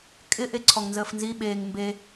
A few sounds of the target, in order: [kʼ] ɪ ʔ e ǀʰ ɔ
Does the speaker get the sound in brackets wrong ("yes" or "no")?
no